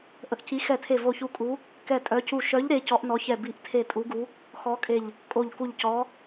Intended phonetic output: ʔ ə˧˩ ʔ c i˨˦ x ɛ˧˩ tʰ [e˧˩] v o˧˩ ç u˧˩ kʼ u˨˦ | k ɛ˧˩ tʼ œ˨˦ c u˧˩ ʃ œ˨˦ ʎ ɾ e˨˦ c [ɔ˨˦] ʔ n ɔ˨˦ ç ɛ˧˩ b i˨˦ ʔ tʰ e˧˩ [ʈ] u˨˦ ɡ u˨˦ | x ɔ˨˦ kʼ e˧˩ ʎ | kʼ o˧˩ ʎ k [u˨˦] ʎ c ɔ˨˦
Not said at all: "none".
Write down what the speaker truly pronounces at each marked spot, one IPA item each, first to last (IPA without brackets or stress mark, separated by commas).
e˧˩, ɔ˨˦, tʼ, u˧˩